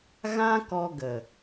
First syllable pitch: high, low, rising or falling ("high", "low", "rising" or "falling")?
high